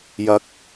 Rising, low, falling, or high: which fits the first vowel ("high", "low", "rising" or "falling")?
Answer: low